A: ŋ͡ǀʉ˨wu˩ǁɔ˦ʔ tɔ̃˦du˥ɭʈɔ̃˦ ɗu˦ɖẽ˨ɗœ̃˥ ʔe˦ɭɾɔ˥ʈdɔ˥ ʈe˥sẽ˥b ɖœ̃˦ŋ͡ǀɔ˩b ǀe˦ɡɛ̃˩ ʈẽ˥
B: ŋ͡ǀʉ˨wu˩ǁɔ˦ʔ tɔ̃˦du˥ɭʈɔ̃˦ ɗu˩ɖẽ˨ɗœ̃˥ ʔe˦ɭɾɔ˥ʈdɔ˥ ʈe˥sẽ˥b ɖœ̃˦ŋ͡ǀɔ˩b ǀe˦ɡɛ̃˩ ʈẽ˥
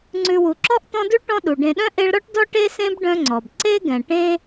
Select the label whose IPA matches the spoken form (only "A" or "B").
B